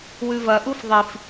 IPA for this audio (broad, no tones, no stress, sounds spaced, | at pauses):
w ʉ v ɐ ʔ u f ðˤ i f